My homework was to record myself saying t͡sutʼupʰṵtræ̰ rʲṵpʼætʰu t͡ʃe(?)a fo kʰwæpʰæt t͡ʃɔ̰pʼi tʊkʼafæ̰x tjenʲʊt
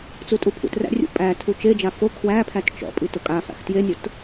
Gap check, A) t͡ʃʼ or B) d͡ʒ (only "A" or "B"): B